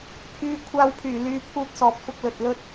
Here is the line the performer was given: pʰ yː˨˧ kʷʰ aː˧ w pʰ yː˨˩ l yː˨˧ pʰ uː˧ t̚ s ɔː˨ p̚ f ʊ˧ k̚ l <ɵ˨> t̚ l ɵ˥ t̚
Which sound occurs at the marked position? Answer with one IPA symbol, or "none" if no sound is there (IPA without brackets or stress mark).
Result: ɵ˨